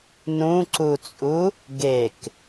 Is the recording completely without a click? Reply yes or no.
no